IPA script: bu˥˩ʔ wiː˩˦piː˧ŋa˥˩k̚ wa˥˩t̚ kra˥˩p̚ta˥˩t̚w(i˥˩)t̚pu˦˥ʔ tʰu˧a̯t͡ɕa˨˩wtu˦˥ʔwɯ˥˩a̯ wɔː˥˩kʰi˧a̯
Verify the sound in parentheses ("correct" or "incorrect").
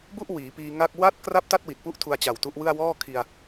incorrect